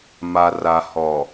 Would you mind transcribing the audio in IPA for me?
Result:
m a˨ r a˨ h ɔ˨

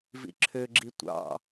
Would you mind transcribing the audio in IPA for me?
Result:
v ḭ ǁʰ ø ɡ͡ǁ i tʷ ɑ̰

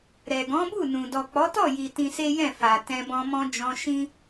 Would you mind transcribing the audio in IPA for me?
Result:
ɾ ɛ˨ ɡ ɔ̃˨˦ b u˦˨ n ũ˨ d ɔ˨ k͡p ɔ˨˦ t ɔ˦˨ j i˨ t ĩ˧ s e˦ j ɛ̃˦˨ f a˨ t ɛ̃˧ b ɔ̃˧ m ɔ̃˧ d͡ʒ ɔ̃˧ ʃ ĩ˦

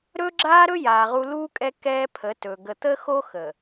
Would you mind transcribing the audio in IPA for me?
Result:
ɾ ɵ˦ ɡ͡ǁ aː˦ ɾ ɵ˦ j aː˨ ʁ u˦ l uː˦ kʼ ɛ˦ k ɛː˦ pʰ ə˨˦ t ɵː˨ ɡ ə˨ t̪ əː˦ x o˦ x ə˨

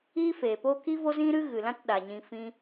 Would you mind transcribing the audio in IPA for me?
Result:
iː˦ f eː˨ p o˦ k i˦ v o˦ z ĩ˦ ɾ ɨ˦ ɣ ɨ˨ l ã˦ t ɗ a˧ ɲ ĩ˦ f ĩ˦

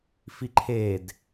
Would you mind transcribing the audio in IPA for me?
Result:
f i ǃʰ e d

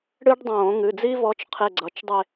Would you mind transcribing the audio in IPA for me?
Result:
ɽ ɨ˥ ɖ dˤ õː˧˩˧ ŋ ɨ˩˧˩ d͡z i˥ v ɔ˥ t͡ʃ qʰ e˥˧ ɡ͡ǀ ʌ˨˦ t͡ʃ dˤ e˥˧

